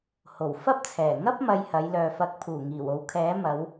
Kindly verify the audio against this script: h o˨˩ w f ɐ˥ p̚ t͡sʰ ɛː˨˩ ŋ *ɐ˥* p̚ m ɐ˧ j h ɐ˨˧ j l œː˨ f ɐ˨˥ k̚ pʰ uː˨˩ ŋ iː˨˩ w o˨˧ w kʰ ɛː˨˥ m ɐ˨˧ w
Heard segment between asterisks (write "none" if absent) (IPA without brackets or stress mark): ɐ˥